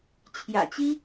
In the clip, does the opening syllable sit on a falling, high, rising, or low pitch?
low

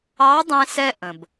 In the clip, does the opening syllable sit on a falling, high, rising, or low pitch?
rising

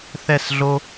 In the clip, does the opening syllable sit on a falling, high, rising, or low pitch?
falling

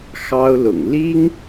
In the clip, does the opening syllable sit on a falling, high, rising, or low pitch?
high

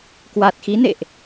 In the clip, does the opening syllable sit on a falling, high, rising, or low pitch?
low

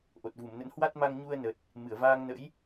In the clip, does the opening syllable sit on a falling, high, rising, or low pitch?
low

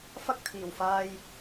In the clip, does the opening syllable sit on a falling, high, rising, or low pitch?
high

